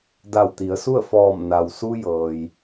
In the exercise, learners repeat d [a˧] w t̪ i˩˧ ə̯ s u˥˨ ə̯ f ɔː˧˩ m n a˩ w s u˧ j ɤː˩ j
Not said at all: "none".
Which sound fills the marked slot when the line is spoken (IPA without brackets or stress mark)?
a˧˩